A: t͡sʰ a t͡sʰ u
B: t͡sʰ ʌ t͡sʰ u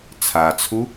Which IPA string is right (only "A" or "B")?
A